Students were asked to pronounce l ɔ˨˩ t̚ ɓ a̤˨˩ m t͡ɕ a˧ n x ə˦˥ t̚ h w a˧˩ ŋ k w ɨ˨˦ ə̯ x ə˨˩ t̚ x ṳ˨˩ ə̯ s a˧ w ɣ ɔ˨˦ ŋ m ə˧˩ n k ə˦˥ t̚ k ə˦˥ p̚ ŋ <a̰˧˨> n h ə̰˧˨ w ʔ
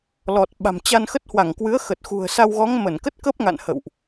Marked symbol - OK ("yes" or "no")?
yes